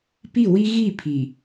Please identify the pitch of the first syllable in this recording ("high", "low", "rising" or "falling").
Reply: falling